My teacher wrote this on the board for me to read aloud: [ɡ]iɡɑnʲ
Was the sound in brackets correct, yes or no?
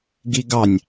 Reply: yes